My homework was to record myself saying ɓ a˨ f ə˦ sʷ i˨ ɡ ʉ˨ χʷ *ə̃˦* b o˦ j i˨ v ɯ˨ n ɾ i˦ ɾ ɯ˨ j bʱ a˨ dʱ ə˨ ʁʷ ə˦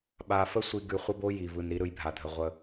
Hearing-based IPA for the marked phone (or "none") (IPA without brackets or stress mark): ə˦